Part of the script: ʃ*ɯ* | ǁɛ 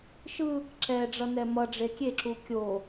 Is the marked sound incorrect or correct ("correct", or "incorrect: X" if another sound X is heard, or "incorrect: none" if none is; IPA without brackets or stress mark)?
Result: correct